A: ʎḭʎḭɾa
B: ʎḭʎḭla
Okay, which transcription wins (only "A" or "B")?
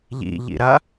A